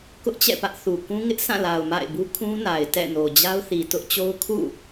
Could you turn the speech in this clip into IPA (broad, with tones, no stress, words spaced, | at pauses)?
kʊ˦ʔt͡ɕɛ̰˦˨pä˦ʔθu˨ kũ˦ŋɪ˦ʔsã˦˨la˨ʊ̯ ma̰˦˨ɪ̯bu˦ kʰũ˦na˨ɪ̯ tɛ̰˦˨ no˨d͡ʑa˦ʊ̯θi˨ tʊ˦ʔt͡ɕo˦ʊ̯ kʰṵ˦˨